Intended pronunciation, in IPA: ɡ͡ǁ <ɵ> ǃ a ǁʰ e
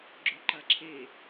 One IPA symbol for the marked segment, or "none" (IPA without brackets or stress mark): ɵ